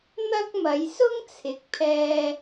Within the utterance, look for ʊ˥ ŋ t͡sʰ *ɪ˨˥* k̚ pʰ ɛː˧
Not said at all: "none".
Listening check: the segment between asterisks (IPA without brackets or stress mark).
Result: ɪ˨˥